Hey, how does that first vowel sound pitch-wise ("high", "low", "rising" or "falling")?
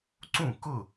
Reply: falling